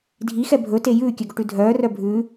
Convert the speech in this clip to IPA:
dʱ i x ɛ bʱ ɵ t e j ʉː kʲ œ ɡ o ʈ ʉ dʱ œː r œ bʱ ʉː

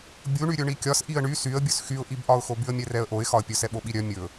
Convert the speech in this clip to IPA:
bʲ u ɳ y ɾʲ ɵ ɳ i kʲ ɒ s ʔ i ə̯ ɳ y s y ə̯ bʲ ɵ s x y ʊ̯ ʔ i b ʔ ɒ ʊ̯ x o b y ə̯ mʲ ɛ r ɛ ə̯ ʔ o ɪ̯ x ɒ ə̯ pʲ ɵ s ɛ ɓ o ɓ i ɾʲ œ mʲ ɵ

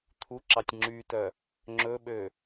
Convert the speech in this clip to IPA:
t̪ʰ u ǁ ɑ tʲ ŋ͡ǁ y t œ | ŋ͡ǁ ɵ ɓ ø

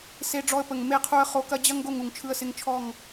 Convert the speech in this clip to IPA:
s e˧ ɖ͡ʐ ɔ˧ ə̯ p ə˨ ŋ m e˦˨ qʰ u˧ ə̯ χ o˨˦ k ɐ˧ d͡ʑ ɐ˦ ŋ ɡ o˦˨ ŋ u˨ ŋ t͡ʃʰ ɯ˧ ə̯ s ɪ˧ ŋ t͡ʃʰ ɔ˦˨ ŋ

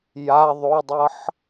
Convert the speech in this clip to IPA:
j a ðˤ o dˤ ɤ ħ

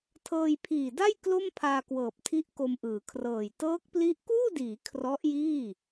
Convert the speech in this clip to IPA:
tʰ ɤː˧ j pʰ iː˨˩ d a˥˩ j k l o˥˩ m pʰ aː˧ k w ɤː˨˩ p̚ tʰ i˦˥ ʔ k o˧ m ʔ ɯː˩˦ kʰ r ɤː˨˩ j t ɤː˦˥ k̚ p l i˦˥ ʔ k uː˥˩ d iː˩˦ kʰ r ɔ˦˥ ʔ j iː˥˩

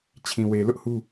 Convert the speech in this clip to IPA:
t͡ɕʰ ĩ˨ w e˨ l ʊ˦ ʔ h u˦

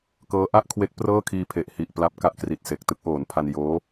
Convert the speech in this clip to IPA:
k ɤː˦˥ ʔ a˥˩ ʔ kʰ w e˦˥ k̚ p r ɤː˥˩ kʰ iː˧ pʰ e˨˩ ʔ h i˨˩ ʔ p l a˦˥ p̚ k a˦˥ ʔ k r i˨˩ t̚ s e˨˩ k̚ t ɯ˦˥ k̚ ʔ oː˩˦ n pʰ a˧ n j oː˦˥

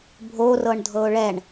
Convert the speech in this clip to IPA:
bʱ o r ɤ ɳ dʱ ɤ ʊ̯ ɭ ɛ ɳ

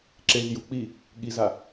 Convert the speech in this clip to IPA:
ǁ e z j u k͡p i | ɠ i z a

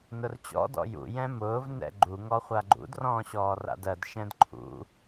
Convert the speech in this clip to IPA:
n ʊ r t͡ɕ ɔ̰ d ɔ̰ j ṵ j ɛ̃ m ʊː v n ɛ̰ ɡ͡ǃ u ŋ ɔ χʷ a ɡ͡ǃ ṵ d r ɔ̃ː ɕ ɔː r a̰ d ɜ d ʃ ɛ̃ d ǃʰ ṵ

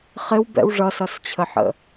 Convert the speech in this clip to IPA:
χ ɪ w b ɛ̰ w ʐ ʌ s ʌ s t͡ɕʰ ə ħ ə̰

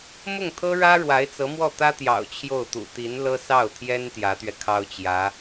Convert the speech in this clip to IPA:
m ʊ˥˩ ŋ t̪ʰ ɤ˥ ɻ ä˥ ɻ w a˧˥ ɪ̯ t͡s ɤ˧˥ m w ɔ˥˩ t̪ ä˥ t̪ j ɑ̰˨˩ ʊ̯ t͡ɕʰ j o˥˩ ʊ̯ t̪ ṵ˨˩ t̪ i˧˥ n l ɤ˥ s ɑ˥˩ ʊ̯ t̪ʰ j ɛ˥ n t̪ j ä˧˥ t̪ ɥ ɛ˧ kʰ ɑ˥ ʊ̯ t͡ɕ j ä˧˥

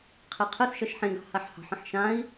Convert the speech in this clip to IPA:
qʰ e qʰ ə s ʃ ʌ ʃ ħ ẽ ɡ ɑ̤ h a ħ h ɑ̤ ħ ə̃ ħ ʃ ã i̯

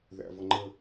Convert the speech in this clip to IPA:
ð æ̰ v ɤ ŋ͡ǃ ə

